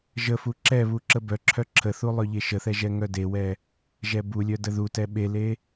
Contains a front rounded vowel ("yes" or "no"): yes